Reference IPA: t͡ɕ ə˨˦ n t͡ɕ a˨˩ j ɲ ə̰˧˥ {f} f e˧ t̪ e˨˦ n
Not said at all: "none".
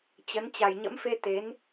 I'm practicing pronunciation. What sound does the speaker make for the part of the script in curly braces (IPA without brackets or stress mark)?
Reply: m